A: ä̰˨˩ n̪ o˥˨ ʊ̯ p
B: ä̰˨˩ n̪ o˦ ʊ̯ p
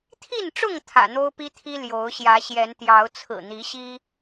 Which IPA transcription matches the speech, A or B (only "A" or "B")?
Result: B